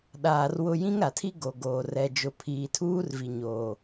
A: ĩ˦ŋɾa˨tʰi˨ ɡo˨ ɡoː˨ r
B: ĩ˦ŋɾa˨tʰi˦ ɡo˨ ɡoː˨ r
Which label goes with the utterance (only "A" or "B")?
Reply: B